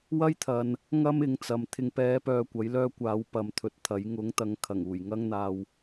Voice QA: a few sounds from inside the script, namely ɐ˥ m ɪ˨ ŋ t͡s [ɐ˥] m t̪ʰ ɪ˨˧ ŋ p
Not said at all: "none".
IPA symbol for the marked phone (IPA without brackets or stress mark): ɐ˨